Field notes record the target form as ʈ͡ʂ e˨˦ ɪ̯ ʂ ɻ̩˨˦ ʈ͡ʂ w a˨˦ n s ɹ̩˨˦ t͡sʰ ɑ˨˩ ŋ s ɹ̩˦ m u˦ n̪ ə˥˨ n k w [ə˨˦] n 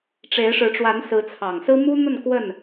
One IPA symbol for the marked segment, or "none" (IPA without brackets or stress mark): ə˥˨